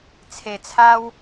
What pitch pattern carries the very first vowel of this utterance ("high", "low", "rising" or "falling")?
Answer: low